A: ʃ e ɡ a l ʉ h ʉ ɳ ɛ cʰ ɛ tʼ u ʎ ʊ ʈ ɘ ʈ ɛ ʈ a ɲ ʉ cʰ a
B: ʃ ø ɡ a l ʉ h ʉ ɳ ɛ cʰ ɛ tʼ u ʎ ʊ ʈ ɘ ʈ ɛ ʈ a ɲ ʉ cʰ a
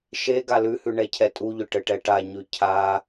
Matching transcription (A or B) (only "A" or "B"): A